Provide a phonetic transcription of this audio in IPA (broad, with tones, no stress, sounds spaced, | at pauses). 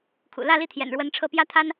kʰ ṵ˨˩ l ä˥˧ l i˥˩ t̪ʰ j ɛ̰˨˩ n ɻ w ə˧˥ n ʈ͡ʂʰ ɤ˥˩ p j ä˥ t̪ʰ a˥ n